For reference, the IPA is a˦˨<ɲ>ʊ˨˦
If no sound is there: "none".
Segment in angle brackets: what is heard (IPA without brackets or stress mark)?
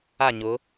ɲ